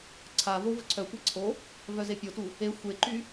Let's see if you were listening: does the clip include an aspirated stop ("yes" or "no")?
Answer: yes